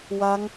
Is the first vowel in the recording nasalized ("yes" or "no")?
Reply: no